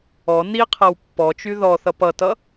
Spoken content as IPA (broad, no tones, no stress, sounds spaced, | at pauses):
ɔ n i qʰ ɤ w pː ɔ t͡ʃ y ð ɔ θ ʌ p ʌ t ʌ